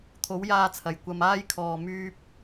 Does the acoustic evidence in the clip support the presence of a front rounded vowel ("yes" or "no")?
yes